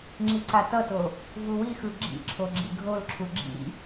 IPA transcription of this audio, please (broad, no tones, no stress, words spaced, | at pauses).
ŋ͡ǁiǀatʌto | vuwixɯ ɡ͡ǁḭǁʰo ɡ͡ǁḭɡʱolǁʰu ɡ͡ǁḭ